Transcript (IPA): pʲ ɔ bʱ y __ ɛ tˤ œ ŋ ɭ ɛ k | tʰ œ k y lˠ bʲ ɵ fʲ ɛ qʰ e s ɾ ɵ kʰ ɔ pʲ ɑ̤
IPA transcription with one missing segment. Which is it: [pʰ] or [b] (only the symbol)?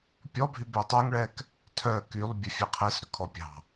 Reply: b